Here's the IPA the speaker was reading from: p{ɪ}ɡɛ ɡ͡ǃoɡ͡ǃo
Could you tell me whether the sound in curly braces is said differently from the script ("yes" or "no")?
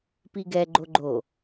yes